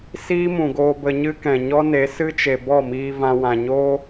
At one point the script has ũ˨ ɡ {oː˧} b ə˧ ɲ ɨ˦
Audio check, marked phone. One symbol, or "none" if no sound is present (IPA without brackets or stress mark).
oː˧